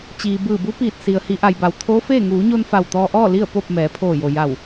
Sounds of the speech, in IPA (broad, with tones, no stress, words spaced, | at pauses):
t͡ɕiː˩bɯː˧˩bu˧˥piː˧˩t̚ si˩ə̯ hi˩˧ʔa˩jba˩w t̪ʰoː˧˥feː˥˨ ŋuː˩˧ɲo˧n fa˧˩wt̪ɔː˧ʔɔː˥˨ li˥˨ə̯ po˥˨p̚ mɛː˩˧pʰoː˧˩jo˩ ja˧˩w